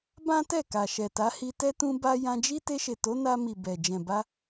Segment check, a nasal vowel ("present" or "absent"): present